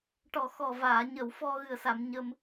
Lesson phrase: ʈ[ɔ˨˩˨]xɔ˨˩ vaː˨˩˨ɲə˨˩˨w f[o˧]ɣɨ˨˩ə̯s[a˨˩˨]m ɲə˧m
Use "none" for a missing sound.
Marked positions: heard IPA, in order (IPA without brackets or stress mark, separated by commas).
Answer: ɔ˨˩, ɔ˧, a˨˩˨